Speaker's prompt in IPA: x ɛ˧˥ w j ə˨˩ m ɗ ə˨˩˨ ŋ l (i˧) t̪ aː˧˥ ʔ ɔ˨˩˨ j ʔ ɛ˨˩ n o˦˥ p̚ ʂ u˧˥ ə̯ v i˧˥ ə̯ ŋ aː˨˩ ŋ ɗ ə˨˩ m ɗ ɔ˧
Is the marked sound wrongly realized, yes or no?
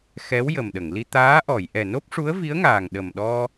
no